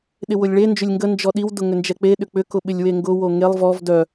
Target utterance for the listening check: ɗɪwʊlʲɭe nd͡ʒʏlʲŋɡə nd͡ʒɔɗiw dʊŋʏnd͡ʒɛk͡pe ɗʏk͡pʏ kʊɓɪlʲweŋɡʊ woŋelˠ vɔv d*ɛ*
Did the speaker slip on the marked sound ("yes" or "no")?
yes